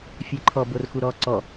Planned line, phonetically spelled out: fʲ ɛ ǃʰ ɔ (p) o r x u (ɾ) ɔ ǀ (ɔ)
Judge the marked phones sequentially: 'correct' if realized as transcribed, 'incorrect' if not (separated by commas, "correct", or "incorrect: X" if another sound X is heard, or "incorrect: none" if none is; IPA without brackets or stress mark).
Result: incorrect: b, correct, correct